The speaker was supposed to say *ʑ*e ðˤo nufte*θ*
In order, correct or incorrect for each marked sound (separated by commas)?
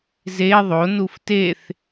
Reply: incorrect, correct